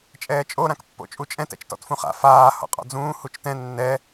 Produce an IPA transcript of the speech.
t͡ʃʼɛːt͡ʃʼo ɾãkpːo̰t͡ʃʼut͡ʃʼɛ̃t ɛ̰t͡ʃtɔ̰tfũχa̰ faː hɔ̰qʼɔ̰d͡zũː hut͡ʃtɛ̃ nːɛ

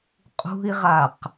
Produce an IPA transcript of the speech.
qʼṳi̯ʁaq

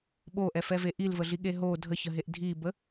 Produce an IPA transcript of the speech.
ɓoʔɛfɛve ʔilvəɮiɠe ɦo dʱəçəɦeʔ dʱibə

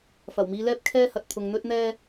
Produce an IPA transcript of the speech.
fɐ˨˩wmiː˧lɛː˥p̚ kʰɛː˥hɐ˨t̚ t̪ʰʊ˨ŋn̪ɵ˥t̚ n̪ɛː˥

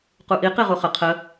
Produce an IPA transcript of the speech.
quʔi qiʁuχə qʰə

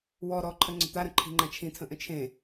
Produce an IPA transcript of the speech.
wɔ ɾɔǃʰə ŋ͡ǀə̤t̪aɾə̃ ǃʰi̤ŋ͡ǃãt͡ʃʰĩtʰə̃ ʔə̃t͡ʃʰẽ

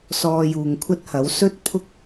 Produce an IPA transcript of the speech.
sɔː˧juː˨ŋkʷʰɐ˥t̚hɐ˨˥w sɵ˥t̚pʰʊ˥k̚

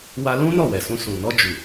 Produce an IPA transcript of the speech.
wa˧lũ˦ nɔ˦˨wɛ˨sũ˧ sũ˨nɔ˧ d͡ʒu˨

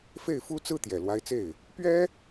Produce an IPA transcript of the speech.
fe˥˩ɪ̯fu˥t͡sɹ̩˥ t̪jɛ˨˩lwa˧˥ɪ̯t͡se˥˩ɪ̯ | pɥɛ˥

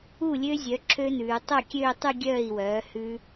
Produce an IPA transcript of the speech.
u˥˩lʲø˦˥zʲœ˩˥ ǁʰø˦˥nʉː˩˧ tˤœ˥˩kʲøː˥˧tˤʉ˥˧ ɡʲœː˥˩i̯wœː˩˥ hʉ˦˥

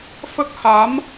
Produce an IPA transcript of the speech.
fə˦˥k̚ ha˧˥m

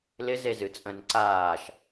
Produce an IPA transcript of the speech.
lɪ zezɨt͡sʼə̃n ǀaːʃ

